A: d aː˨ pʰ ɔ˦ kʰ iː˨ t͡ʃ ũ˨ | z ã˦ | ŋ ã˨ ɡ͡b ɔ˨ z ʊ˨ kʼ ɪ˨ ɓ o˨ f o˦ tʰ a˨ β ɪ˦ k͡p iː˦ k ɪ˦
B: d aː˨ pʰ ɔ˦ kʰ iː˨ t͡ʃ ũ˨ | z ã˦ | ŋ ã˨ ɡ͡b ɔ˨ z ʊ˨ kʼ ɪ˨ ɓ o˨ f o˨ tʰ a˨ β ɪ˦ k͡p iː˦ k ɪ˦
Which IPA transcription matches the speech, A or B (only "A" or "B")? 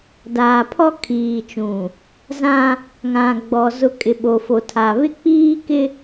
B